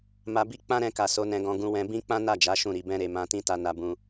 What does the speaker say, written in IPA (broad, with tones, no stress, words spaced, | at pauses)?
ma˧bi˦ k͡pã˦ɾɛ̃˧ka˨ so˨˦nɛ̃˧ɡɔ̃˧ ɡũ˧wɛ̃˧ bĩ˦k͡pã˦na˦˨d͡ʒa˨˦ ʃũ˦˨ɾi˧bɛ̃˦ɾe˧ mã˧tĩ˦ta˧ na˧ bũ˧